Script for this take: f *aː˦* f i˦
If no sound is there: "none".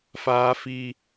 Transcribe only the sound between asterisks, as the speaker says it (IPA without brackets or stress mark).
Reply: aː˦